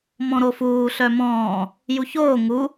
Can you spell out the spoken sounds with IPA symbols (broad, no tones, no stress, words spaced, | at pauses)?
mɔ̃ɾofuː ɬœmɔ̃ː | juçoː ŋu